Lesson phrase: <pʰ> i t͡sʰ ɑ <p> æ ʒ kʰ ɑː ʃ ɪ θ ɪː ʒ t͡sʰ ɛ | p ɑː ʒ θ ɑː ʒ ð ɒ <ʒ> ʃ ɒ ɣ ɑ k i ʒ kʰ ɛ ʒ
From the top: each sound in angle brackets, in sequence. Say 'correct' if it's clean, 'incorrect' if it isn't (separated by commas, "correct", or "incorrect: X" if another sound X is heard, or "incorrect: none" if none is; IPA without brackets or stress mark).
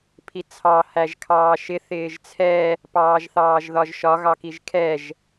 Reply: correct, incorrect: h, correct